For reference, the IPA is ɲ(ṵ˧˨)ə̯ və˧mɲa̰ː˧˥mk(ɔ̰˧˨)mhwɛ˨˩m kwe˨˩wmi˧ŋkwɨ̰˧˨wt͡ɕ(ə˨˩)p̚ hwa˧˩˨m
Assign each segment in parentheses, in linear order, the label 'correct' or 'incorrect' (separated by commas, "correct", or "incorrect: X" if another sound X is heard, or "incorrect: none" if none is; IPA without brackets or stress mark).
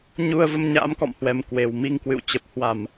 incorrect: u˧, correct, correct